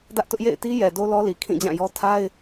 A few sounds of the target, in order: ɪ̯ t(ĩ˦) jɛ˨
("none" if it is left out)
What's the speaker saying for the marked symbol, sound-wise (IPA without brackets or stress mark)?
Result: i˦